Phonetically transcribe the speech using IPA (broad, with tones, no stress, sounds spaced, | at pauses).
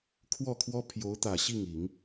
kʰ w ɔ˥˩ kʰ w ɔ˥ pʰ j o˧˥ ʊ̯ t̪ ä˨˩ ɕ i˥˩ ŋ i˨˩˦ ŋ